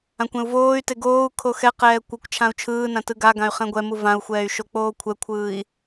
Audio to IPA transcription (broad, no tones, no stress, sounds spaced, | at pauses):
ã kʷ ɛ̃ u̯ v oː y̯ t e ɡ oː u̯ kʰ o x ɛ q ɛː kʷ ʌ kʷ t͡ʃʰ ã u̯ t͡ʃʰ ɯː n ã t ɯ ɡ a ɡ ã y̯ χ ɛ̃ ɡʷ ɛ m u v ã u̯ xʷ ɛː y̯ ʃ o k͡p oː kʷʰ ɛ kʷʰ ɯː i̯